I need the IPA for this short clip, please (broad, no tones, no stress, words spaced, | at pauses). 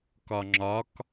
kɒŋ͡ǁɒk